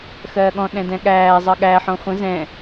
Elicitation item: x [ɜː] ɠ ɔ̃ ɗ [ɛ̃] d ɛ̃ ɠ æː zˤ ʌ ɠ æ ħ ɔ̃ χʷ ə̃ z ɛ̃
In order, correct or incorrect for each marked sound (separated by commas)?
correct, correct